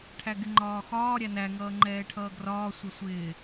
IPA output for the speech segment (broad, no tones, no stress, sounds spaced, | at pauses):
ʈʰ æ ɡ ɪ ŋ͡ǃ ɒː x ɒː ɾʲ æ n æ ŋ ʌː ŋ͡ǃ ɛː ʈʰ ʌː ɡ r ɒː sʷ ʌ sʷ ɪː